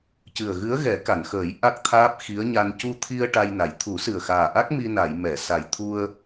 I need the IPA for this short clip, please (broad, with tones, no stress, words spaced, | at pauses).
cɨ˨˩ə̯ɣɨ˧˥ə̯ɣɛ˨˩˦ ka˨˩˨nxəː˨˩˦j ʔa˦˥k̚ t̪ʰaː˦˥p̚xi˧˥ə̯ɲa˧n cu˧t̪ʰi˧ə̯ ʈa˧jna˨˩˨j t̪ʰu˨˩˦sɨ˨˩ə̯xaː˨˩ʔa˦˥k̚ mi˧na˨˩˨j mɛ˨˩˨sa˨˩j t̪ʰu˧ə̯